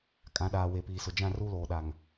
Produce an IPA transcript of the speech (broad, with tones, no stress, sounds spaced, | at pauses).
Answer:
kʼ ã˨˦ ɗ aː˨ w e˨ p iː˨ s ʊ˨ d͡ʒ ã˦˨ r u˦ l oː˨ ɗ a˨ ŋ